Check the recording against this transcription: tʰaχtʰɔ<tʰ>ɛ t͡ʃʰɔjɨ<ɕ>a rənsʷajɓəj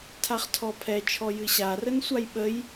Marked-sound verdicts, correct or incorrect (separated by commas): incorrect, correct